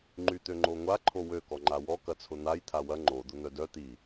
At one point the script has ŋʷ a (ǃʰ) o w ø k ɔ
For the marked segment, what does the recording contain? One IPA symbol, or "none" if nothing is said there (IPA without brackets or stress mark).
ǃʰ